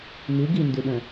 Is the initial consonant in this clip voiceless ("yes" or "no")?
no